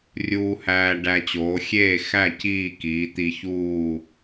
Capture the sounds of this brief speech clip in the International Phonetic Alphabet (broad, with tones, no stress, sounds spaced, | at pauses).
rʲ uː˧ h æː˧ ɖ æ˧ t͡ɕ oː˩˧ xʲ eː˥˨ x æ˥˨ c iː˥˨ k iː˩˧ t̪ i˧ ç uː˥˨